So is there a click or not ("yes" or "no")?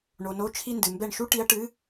no